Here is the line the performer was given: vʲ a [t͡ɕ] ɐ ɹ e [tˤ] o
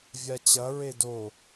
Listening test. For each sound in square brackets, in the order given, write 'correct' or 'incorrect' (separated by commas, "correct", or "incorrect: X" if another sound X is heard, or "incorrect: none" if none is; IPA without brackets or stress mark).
correct, incorrect: d